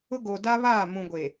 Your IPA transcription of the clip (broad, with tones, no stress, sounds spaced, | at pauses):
ʊ˦ ɡ oː˨ d a˦ β aː˦˨ m ũ˨ ɡʷ e˨